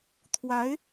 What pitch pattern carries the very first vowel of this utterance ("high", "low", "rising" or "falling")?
rising